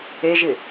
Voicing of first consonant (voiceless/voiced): voiced